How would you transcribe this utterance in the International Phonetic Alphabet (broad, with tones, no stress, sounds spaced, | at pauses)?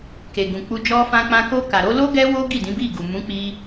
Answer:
k e˨ ɡ ũ˨ k͡p u˧ d͡ʒ ɔ˧ f ã˧ k͡p ã˧ k o˧ k a˨ ɾ o˧ l o˦ ɡ ɛ˦ w o˦ ɡ i˦˨ d ĩ˨˦ b i˦˨ ɡ u˨ m ũ˨˦ k͡p i˧